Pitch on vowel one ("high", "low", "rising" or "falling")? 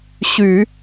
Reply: low